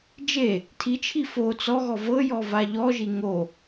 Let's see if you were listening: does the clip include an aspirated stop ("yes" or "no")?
yes